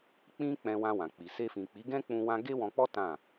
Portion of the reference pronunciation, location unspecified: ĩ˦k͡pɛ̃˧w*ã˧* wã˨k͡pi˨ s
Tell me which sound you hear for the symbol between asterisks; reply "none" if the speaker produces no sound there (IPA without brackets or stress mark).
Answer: ã˧